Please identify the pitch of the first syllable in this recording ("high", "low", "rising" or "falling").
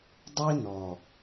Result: high